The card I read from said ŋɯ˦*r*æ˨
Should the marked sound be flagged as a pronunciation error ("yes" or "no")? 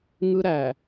yes